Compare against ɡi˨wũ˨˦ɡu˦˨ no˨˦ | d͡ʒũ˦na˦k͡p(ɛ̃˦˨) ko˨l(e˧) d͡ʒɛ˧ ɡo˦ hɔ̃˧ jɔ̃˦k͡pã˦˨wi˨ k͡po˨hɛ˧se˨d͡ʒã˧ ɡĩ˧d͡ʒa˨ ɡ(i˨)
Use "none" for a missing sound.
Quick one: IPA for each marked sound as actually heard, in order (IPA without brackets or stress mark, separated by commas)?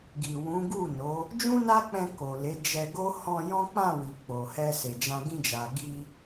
ɛ̃˧, e˨˦, i˧